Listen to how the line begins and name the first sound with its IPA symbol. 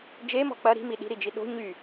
d͡ʒ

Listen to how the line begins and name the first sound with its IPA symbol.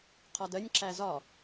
qʰ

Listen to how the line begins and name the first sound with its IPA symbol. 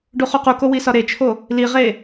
ɖ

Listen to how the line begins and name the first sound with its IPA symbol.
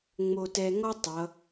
ŋ͡m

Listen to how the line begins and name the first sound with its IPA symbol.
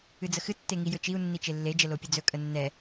ɨ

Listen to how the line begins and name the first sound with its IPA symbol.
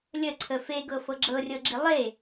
lʲ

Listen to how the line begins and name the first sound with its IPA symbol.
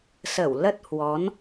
s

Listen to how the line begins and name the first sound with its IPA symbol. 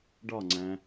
ɖ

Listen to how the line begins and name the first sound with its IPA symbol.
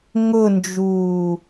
ŋ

